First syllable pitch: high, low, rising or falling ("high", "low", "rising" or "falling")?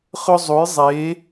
high